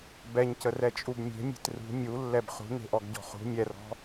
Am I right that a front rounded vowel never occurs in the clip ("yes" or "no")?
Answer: yes